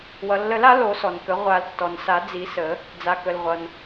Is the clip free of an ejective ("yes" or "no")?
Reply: yes